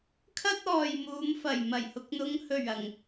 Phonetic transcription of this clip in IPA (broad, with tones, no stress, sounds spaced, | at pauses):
kʰ ɐ˥ t̚ ɔː˨ j m uː˨˧ m f ɐ˨˩ j m ɐ˨˩ j h ʊ˨ k̚ n̪ ʊ˨˧ ŋ h ɵ˨˩ ɥ ɐ˨˩ ŋ